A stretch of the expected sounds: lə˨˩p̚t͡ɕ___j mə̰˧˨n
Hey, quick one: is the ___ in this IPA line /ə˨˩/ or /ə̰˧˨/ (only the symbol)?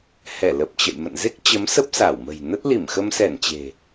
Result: ə̰˧˨